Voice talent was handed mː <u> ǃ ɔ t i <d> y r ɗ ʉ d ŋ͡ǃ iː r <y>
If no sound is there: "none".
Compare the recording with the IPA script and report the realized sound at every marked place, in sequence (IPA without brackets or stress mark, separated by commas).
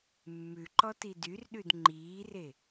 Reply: ʉ, d, e